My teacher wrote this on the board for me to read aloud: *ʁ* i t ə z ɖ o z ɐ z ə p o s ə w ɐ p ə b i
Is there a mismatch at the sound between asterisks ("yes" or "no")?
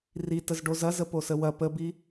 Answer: yes